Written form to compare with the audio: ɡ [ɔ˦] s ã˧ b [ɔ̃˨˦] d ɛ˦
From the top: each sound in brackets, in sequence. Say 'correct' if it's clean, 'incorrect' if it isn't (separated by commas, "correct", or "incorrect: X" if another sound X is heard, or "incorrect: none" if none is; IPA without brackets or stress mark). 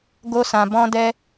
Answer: incorrect: o˦, incorrect: ɔ̃˦